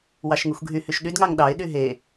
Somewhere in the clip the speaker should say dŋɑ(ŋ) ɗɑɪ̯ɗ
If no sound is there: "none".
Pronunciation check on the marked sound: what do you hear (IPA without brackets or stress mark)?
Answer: ŋ